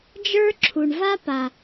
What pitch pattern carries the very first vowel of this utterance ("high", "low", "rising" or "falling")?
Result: high